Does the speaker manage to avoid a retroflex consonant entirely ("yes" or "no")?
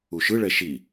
no